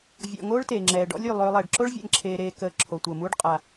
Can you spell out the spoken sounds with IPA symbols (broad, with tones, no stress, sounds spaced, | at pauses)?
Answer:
vʲ ɔ̰˨ ŋ oː˥ ɭ t eː˩ ŋ͡ǁ ɛː˩ ɖ ɔ̰˥ lʲ y˩ lˠ øː˨ lˠ ɛː˩ ɖ ǁ o˥ ɭ vʲ ɛ̰˨ ŋ ǁʰ eː˨ ɾ eː˨ k əː˨ ǁʰ o˩ tʷ əː˩ m uː˦ ɖ qʼ a˨